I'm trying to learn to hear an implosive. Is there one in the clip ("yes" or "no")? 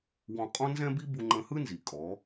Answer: no